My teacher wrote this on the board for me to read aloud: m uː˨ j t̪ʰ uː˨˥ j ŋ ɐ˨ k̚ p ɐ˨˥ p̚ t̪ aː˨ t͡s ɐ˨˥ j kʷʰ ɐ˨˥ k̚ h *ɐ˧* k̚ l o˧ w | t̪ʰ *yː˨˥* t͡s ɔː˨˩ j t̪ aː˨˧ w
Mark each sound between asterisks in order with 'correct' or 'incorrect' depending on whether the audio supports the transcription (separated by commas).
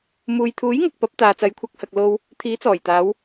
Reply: incorrect, incorrect